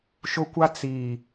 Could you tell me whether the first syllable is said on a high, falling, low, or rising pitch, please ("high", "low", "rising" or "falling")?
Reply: high